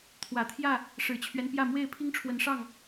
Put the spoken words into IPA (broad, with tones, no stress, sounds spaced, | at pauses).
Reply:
t̪ʰ w ä˨˩ t̪ʰ j ä˥˨ | ʂ ɻ̩˨˩ t͡ɕʰ ɥ ɛ˦ n p j ä˥˨ m w e˥˨ ɪ̯ pʰ i˦ ŋ ʈ͡ʂʰ w ə˨˦ n ʂ ɑ˥˨ ŋ